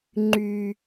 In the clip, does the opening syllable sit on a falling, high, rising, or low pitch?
low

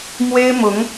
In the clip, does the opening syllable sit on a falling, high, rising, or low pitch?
high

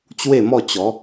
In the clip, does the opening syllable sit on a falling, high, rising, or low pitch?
falling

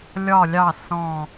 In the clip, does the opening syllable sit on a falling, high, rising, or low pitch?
low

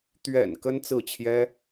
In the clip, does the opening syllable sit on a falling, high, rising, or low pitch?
low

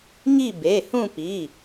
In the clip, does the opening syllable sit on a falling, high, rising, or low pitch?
falling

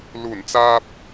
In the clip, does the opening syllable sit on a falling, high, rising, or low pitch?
low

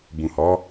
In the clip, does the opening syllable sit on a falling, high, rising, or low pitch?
low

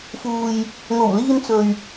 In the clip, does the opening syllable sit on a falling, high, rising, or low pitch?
low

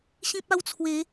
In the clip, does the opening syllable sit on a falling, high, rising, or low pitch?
high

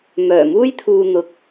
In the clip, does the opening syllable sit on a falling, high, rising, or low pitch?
low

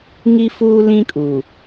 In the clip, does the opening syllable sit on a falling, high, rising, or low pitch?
high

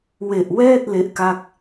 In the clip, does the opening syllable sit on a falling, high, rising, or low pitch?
low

